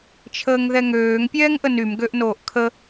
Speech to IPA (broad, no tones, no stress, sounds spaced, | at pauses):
t͡ʃʰ əː ŋ ð ɛ ŋ øː ŋ pʲ ɛː ŋ ʔ ə n y m ɡ ø ʔ n oː ʔ kʰ ə